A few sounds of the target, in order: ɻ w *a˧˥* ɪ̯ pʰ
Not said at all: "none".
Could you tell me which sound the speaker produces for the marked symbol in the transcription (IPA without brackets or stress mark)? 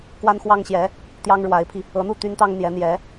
a˧˥